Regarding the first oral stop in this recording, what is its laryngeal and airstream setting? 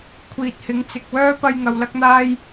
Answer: aspirated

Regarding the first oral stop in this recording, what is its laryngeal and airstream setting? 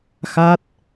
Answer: plain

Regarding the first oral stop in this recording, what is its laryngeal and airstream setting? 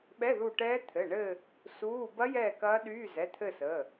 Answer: implosive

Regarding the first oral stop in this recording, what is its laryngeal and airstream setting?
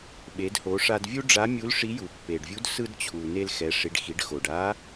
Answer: implosive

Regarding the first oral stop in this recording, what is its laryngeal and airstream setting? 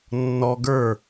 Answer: plain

